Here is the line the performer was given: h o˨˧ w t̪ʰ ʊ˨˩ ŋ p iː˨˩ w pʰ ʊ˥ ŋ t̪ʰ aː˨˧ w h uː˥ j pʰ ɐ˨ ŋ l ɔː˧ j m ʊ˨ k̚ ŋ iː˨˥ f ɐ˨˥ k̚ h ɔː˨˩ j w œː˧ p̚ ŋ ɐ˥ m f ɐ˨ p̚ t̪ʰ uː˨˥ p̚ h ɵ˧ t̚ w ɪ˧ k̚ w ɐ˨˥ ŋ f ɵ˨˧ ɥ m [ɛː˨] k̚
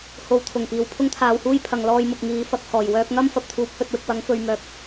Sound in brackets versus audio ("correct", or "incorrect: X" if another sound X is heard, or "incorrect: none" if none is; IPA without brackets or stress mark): incorrect: œː˨